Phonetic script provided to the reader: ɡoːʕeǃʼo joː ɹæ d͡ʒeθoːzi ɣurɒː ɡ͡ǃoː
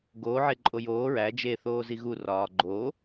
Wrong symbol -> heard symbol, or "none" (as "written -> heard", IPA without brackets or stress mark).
none